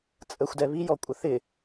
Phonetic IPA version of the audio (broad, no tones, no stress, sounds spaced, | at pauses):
t͡sʼ ə xʷ d ɛ β i j ɔ kʷʼ ə θ ɪ